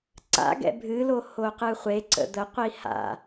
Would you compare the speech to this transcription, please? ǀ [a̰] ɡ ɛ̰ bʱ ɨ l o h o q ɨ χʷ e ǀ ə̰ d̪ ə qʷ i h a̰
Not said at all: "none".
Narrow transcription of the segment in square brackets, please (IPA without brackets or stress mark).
a̰